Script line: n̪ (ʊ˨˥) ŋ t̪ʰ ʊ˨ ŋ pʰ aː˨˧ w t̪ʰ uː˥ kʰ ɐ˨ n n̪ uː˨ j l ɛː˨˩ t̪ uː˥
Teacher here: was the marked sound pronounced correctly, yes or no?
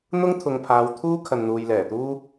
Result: no